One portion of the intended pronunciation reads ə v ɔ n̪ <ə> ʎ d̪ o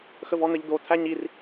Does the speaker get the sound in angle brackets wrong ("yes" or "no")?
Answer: no